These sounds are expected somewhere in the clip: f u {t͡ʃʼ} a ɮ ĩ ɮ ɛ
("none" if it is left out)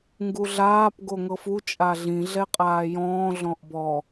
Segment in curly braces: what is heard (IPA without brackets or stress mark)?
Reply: t͡ʃʼ